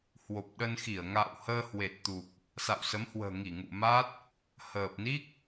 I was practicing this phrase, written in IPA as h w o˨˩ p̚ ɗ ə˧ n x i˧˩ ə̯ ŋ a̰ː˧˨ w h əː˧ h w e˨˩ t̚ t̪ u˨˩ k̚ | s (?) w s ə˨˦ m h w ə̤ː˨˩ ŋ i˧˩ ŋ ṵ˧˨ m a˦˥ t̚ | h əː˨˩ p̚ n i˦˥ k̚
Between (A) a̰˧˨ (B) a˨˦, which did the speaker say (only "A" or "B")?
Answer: A